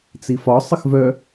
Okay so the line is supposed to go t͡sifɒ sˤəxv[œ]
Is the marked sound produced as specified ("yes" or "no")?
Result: yes